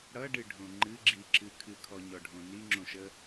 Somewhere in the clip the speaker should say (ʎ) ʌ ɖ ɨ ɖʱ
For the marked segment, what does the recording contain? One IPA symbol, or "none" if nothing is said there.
ɽ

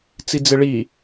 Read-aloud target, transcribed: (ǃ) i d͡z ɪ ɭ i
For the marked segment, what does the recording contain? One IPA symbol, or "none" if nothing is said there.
t͡s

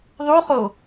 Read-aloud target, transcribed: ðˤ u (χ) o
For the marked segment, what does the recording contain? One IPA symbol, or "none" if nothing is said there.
χ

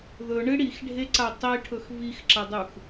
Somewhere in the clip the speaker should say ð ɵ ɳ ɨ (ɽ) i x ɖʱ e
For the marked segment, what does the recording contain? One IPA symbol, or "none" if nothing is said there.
ɽ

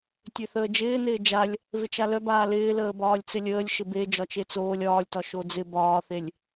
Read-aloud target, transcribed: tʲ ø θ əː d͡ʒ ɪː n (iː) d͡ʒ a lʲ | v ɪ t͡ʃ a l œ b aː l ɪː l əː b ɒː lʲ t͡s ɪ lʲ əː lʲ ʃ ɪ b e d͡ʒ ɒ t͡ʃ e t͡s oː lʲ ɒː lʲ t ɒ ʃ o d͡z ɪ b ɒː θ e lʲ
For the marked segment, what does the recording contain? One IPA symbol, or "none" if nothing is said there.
ɪː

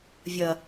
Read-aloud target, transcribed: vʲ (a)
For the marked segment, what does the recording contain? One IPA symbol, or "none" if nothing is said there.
ɐ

